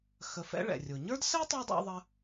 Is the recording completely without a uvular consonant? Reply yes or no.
yes